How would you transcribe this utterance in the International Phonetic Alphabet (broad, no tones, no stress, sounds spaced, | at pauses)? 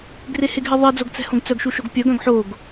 ɡ r e h e ɡ ɦ ɛ ðˤ e d͡z o ɡ t͡s ɛ̤ h õ ɡ t͡s œ ɡ ʃ u ʃ o ɡ pʲ œ ɡ œ̃ ɡ ħ o ɡ